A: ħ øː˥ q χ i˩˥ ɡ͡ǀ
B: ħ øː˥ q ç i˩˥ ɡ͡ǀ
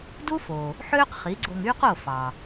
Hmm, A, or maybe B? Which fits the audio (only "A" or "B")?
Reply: A